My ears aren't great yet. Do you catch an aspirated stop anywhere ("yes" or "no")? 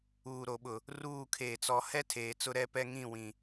yes